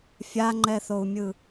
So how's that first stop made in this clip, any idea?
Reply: click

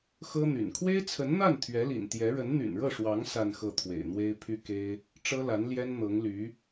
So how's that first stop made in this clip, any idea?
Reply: aspirated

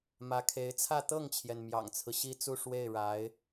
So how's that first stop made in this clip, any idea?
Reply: aspirated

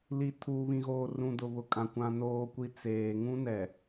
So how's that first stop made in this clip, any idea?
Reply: aspirated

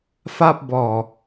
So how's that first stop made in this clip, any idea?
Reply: plain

